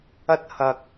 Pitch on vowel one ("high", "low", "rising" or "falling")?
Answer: high